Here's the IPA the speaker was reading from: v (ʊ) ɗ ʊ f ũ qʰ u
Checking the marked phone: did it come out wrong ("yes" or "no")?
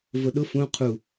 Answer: no